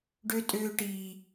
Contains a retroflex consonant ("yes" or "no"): yes